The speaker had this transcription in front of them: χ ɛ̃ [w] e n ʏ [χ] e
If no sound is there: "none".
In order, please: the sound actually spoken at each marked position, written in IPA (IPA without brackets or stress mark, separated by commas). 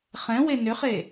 w, χ